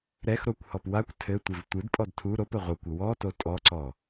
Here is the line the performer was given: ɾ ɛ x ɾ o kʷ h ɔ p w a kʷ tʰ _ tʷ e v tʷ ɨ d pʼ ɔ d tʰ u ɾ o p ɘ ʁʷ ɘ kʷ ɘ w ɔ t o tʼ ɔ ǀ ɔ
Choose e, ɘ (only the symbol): ɘ